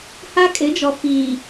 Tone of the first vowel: high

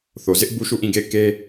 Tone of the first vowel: low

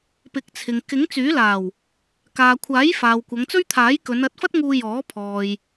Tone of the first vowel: rising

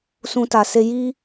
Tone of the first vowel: high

